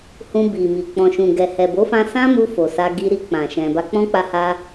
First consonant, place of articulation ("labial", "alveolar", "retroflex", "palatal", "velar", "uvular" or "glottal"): glottal